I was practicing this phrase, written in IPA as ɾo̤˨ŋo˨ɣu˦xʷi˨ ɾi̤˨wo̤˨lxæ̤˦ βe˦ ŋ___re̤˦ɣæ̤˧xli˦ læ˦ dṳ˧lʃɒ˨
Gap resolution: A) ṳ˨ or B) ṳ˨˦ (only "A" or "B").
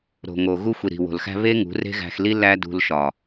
B